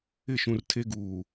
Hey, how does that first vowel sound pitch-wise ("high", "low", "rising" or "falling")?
falling